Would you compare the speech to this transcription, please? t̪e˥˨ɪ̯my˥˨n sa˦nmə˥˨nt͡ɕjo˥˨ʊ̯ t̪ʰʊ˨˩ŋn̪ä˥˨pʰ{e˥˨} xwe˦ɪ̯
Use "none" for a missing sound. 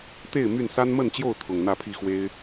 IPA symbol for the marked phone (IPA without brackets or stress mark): i˥˨